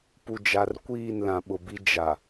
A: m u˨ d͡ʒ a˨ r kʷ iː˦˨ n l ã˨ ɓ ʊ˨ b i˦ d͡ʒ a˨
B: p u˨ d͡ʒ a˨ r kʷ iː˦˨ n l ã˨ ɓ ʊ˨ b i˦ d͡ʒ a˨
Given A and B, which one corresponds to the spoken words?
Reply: B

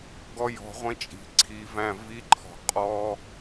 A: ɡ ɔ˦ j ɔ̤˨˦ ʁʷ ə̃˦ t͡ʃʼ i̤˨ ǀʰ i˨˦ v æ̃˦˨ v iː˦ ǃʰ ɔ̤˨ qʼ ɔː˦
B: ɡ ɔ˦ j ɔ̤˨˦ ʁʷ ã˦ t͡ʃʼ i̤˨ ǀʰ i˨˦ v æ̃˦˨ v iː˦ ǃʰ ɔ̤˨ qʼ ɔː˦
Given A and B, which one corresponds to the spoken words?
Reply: A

